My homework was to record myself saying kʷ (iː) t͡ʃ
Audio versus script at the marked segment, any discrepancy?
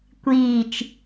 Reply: no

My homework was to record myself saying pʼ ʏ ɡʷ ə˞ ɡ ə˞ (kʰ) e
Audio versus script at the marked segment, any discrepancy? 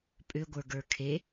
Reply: no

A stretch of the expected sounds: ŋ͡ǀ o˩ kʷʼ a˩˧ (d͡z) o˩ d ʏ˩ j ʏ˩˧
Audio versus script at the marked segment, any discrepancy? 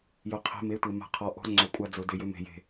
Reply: no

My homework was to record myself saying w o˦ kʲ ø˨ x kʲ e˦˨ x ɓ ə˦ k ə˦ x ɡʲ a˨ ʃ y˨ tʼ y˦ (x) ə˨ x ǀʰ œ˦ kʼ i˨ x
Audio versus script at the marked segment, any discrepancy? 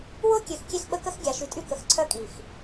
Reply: yes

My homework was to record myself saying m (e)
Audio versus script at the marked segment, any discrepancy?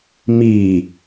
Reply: yes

